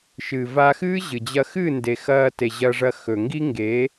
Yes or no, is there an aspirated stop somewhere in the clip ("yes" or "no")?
no